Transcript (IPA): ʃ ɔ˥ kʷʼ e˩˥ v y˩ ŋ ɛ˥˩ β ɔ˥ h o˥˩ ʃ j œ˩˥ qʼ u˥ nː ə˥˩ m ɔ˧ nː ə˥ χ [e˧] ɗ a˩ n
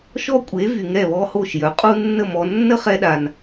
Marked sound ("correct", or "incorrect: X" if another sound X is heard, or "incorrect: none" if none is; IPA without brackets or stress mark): incorrect: ɛ˧